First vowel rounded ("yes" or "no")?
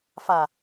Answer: no